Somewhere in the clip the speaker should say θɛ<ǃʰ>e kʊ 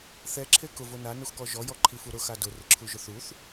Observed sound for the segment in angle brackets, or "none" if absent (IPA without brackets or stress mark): ǁʰ